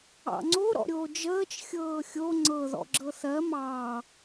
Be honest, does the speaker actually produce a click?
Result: yes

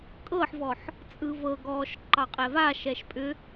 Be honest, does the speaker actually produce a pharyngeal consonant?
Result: yes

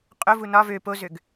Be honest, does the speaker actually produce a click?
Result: no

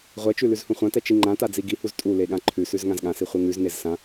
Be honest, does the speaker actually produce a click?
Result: yes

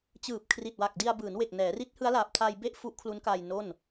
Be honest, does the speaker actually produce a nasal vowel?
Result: no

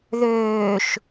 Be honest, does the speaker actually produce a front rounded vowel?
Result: yes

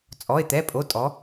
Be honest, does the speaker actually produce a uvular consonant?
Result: no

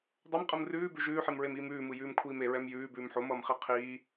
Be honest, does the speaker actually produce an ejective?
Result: yes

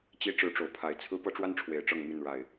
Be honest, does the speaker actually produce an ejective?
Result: no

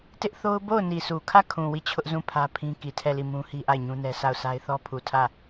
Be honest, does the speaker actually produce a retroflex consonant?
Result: no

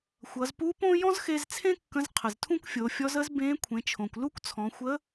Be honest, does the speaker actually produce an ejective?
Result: no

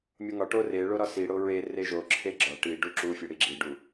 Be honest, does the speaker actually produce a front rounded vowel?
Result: no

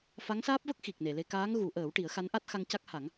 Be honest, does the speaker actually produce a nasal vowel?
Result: no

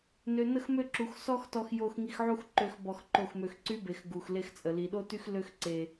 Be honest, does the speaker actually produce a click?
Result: yes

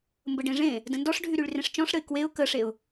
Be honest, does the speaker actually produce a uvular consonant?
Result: no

